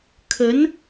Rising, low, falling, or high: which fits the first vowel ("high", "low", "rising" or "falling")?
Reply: rising